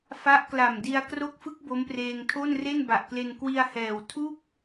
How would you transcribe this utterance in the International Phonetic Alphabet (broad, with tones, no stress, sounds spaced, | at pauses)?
f a˦˥ ʔ k l a˨˩ m d i˧ a̯ k r o˦˥ k̚ f ɯ˦˥ k̚ b o˦˥ m p r eː˧ ŋ tʰ o˥˩ n r e˥˩ n b a˨˩ ʔ k l e˧ n k w i˧ a̯ h ɛː˨˩ w tʰ u˥˩ k̚